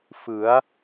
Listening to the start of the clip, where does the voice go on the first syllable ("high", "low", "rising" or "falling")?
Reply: rising